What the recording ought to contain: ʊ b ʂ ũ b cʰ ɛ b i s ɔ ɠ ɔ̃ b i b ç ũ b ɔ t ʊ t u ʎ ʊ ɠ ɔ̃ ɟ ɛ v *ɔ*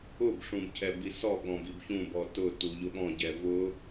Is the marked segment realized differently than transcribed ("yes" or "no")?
yes